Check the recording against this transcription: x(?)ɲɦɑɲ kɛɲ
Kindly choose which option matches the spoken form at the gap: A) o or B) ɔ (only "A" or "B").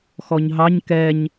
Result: B